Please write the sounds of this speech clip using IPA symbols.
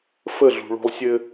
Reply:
f ə˦˨ ɮ ṳ˨ ɭ o̤˧ lˠ sʲ ɘ˧

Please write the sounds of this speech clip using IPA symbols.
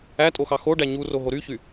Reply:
æ tʼ o x ɑ x o ɖ æ ɲ u r o ɦ o ɾ y ç y

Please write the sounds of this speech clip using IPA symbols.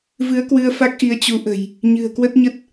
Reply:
v ɨ˨˦ ə̯ k w ɨ˧ ə̯ f a˦˥ k̚ ʔ i˨˦ ə̯ t͡ɕ u˨˦ ʔ ə̤˨˩ j | ɲ ɨ̤˨˩ ə̯ k w ə˦˥ t̚ ɲ ə˦˥ t̚

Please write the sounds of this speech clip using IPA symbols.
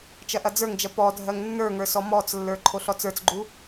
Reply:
t͡ʃ ɐ ʔ ɐ d͡z ə˞ ŋ d͡ʒ ɐ p ɔ dʱ ɜ ŋ nː ə˞ ŋ ə˞ s ɔ m ɔ t͡s lː ə˞ ǃʰ o ɬ ɔ t͡s ə˞ t͡s ɡ͡ǃ u

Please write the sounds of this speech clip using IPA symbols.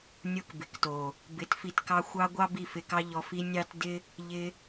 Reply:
nʲ o˦ k b ɪ˨ k t o˨ | b ɪ˨˦ t f i˧ t k ɑ˦ xʷ ɑ˦ ɡʷ ɑ˦ b i˦˨ f ɪ˧ k ɑ˦ ʎ ɔ˧ f i˦ nʲ ɑ˦ t d ɪ˦ | ʎ ɪ˧

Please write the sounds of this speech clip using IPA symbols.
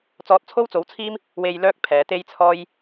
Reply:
t͡s ɔː˧ t̚ t͡sʰ o˥ w t͡s o˨˥ w t͡sʰ iː˥ m | w e˧ j l œː˥ k̚ pʰ ɛː˨˧ t̪ e˥ j t͡sʰ ɔː˥ j

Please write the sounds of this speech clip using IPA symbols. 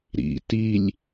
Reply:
ɾ ḭ t i lʲ

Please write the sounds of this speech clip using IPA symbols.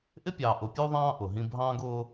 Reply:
ʔ ɪ˦ pʲ ɑː˨ ʔ ʊ˨ pʲ u˦ ðˤ ɑ̃ː˦ ʔ ʊ˨ ɦ ĩ˦ bʱ ɑ̃ː˦ ɡ ʊː˦

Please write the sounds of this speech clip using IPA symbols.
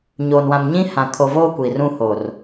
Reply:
ɲ oː˨ n w ã˨ m ɲ ĩ˦ h ã˨ kʰ o˨ v oː˦ kʷ iː˨ r ũ˦ h o˨ r

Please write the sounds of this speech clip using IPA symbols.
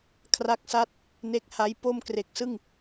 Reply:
kʰ r a˦˥ k̚ s a˥˩ t̚ | n e˦˥ k̚ h a˦˥ j p o˥˩ m k r e˨˩ k̚ s ɯ˥˩ ŋ

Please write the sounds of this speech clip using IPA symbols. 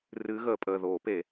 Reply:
r ɨː˨˦ ɣ əː˧˩˧ pʼ əː˩˧˩ ð oː˧˩˧ p e˧˩˧

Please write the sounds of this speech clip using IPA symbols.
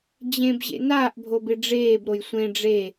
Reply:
d͡ʑ ẽ b ʑ ḛ n aː ʔ bʱ o b ɪ ɖ͡ʐ eː b ɾ o j sʷ ẽ ɖ͡ʐ e

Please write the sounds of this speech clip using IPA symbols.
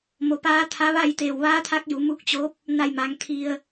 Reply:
m o˩ p aː˧˥ t̪ʰ a˧˥ ʋ a˥˨ j t̪ eː˧˩ w ʋ aː˧˥ t̪ʰ a˧˥ k̚ j u˩˧ m u˧˥ k̚ t͡ɕ o˧˥ p̚ | n a˧˩ j m a˩˧ ŋ t̪ʰ i˧ ə̯

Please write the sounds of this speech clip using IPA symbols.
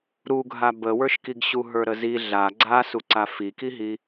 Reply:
ɾ u ɡʱ a b ə w ə˞ ʃ k i ɡ ɕ u ɦ ə˞ ɾ ə z i ɮ a ɡ͡ǀ a s u ǀ a f i k i ɦ i

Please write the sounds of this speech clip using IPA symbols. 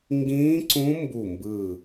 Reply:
ŋ ɡ ĩː˦˥ ǀ ũ˦˥ m b u˥˨ m b ɯ˥˨

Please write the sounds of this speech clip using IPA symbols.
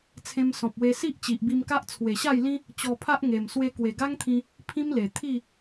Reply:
t͡sʰ ẽ˧ m s ɔ̃˨ p̚ w e˧ s i˦ ʔ t͡ɕ i˨ ʔ b i˧ m k a˦ ʔ t͡sʰ w e˨˩ ɕ a˥˧ j l ĩ˦ | t͡ɕ ɔ˧ pʰ a˦ ʔ ŋ e˨˩ m s w e˧ k w e˨˩ ɡ a˦ ŋ t̪ʰ ĩ˧ | pʰ ĩ˦ m l e˨˩ t̪ʰ i˥˧

